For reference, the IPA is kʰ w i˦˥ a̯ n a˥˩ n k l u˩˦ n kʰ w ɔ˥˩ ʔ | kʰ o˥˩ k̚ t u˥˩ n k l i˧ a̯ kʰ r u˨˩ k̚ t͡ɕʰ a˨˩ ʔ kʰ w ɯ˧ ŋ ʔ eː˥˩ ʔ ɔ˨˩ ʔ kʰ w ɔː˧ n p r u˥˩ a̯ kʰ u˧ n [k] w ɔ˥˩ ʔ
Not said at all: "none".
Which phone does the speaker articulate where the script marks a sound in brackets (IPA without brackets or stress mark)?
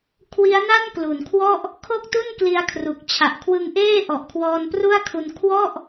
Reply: kʰ